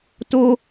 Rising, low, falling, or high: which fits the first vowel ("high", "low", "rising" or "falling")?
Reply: high